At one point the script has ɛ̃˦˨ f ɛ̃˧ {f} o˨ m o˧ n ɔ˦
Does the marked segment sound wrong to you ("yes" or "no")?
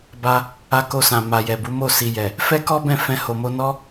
yes